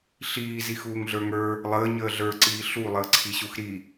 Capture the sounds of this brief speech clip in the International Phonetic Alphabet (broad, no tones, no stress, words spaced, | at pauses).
ɬiːzix uːŋɮə˞ŋə˞ | lˠəː ɲəːɮə˞ǀiː ɬu lˠəːǀʰiɕuxɾi